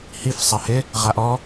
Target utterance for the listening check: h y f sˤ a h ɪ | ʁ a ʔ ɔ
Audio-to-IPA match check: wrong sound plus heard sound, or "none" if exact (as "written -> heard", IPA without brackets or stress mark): y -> i